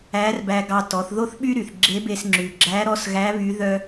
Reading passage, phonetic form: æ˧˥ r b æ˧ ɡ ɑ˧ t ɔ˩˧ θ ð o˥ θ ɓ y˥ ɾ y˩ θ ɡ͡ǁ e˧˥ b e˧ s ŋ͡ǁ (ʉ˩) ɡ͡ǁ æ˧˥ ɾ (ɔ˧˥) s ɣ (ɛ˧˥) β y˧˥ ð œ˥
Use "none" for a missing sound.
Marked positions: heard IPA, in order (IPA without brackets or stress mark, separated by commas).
ʉ˩, ɔ˧˥, æ˧˥